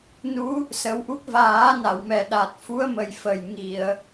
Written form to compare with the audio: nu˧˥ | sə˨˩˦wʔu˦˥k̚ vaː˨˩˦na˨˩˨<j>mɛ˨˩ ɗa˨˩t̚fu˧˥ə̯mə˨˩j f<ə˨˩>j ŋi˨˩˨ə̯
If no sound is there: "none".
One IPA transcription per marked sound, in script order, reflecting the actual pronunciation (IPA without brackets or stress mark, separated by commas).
w, ə˨˩